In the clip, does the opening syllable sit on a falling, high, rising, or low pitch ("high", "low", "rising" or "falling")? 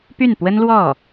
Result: falling